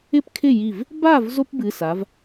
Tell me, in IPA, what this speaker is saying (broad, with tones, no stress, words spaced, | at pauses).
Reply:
ɪ˥˩pkʰɪ˥˩ ji˧˩v | ba˥˩v zo˥pbɨ˩˧˩sa˩˧v